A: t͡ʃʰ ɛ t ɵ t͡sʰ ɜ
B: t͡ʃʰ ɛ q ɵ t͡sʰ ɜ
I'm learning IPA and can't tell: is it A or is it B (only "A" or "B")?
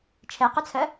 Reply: B